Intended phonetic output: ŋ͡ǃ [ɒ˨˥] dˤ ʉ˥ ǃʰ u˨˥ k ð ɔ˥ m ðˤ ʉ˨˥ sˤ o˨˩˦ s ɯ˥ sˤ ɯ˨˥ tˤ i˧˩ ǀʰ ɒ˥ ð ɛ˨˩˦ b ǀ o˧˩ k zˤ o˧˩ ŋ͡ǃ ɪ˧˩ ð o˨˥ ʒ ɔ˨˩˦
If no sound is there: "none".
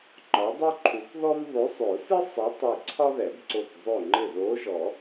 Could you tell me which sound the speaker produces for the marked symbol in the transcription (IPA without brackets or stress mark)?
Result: ɒ˨˥